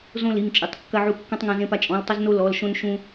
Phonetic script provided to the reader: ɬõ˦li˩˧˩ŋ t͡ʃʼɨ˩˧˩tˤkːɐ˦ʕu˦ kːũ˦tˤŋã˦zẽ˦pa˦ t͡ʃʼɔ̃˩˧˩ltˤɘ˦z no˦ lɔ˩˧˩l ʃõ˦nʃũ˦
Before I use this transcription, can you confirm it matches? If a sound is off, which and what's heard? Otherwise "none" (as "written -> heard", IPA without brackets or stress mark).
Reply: ɬ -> z